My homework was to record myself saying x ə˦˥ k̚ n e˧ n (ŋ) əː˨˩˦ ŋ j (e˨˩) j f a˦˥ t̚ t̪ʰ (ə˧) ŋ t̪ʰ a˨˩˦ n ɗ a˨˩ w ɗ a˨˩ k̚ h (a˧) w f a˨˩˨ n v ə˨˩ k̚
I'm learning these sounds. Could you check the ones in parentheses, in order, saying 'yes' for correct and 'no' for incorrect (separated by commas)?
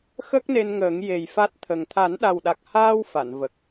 yes, yes, no, no